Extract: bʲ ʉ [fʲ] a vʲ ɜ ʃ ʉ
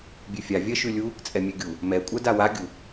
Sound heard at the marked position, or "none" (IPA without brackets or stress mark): fʲ